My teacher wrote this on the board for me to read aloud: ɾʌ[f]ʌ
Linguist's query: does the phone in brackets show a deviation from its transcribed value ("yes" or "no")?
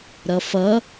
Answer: no